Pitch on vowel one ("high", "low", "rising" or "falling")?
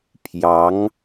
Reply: rising